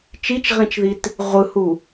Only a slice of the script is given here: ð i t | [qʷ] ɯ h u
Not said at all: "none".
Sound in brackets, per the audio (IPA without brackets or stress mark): ʁʷ